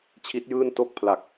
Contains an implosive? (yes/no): no